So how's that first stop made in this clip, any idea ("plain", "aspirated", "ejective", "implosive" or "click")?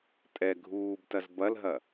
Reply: ejective